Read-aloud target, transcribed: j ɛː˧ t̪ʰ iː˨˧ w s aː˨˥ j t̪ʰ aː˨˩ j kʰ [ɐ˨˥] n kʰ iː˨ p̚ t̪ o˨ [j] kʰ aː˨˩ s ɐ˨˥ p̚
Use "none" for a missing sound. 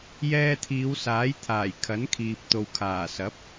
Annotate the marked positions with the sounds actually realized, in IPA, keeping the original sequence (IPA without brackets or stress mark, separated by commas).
ɐ˨˥, w